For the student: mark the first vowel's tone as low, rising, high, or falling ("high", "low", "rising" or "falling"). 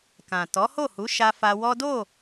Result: low